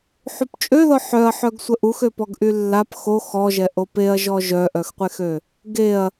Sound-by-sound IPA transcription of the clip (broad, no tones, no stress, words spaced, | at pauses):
ħupt͡ʃʼøðɔ ħœɐ̯ħœɡ sʷəʔuxøpɔɡ ʔylːap xo xɔʒɛ ʔopeɐ̯ʒɔ ʒœʔœxqʷexø | ɡeɐ̯